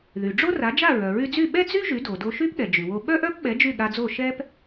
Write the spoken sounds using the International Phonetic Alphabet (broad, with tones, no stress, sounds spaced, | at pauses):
ð y˩ ɖ͡ʐ o˥ r a˩˥ d͡ʒ a˥˩ ɹ œ˩ ɹ y˧ d͡z y˥˩ ɓ ɛ˥ d͡z y˥ ʒ y˩˥ d o˩ d o˧ ʃ y˥ p ɠ ɛ˩ d͡ʒ y˩ w o˧ ɓ œ˥ ʔ œ˥ p ɓ ɛ˩˥ d͡ʒ y˥˩ ɠ a˧ d͡z o˥˩ ʃ ɛ˥ p